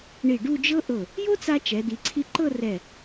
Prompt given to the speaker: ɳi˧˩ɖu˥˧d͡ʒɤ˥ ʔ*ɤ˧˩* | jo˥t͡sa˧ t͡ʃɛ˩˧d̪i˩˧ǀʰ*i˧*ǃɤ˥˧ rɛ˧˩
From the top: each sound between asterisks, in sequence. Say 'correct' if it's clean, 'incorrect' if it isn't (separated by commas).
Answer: correct, correct